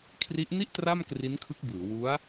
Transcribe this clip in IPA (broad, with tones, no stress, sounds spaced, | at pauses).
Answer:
kʰ r i˦˥ ʔ n i˥˩ ʔ t r a˥˩ m k r i˦˥ n kʰ ɯ˦˥ k̚ b ɯː˩˦ w u˦˥ a̯